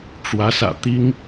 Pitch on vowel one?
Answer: rising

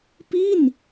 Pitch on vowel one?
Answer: falling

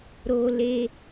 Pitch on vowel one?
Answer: high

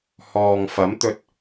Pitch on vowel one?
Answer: low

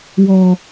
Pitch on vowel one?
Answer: high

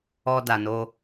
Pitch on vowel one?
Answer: high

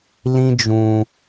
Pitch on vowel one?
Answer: high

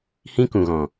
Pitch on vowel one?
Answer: high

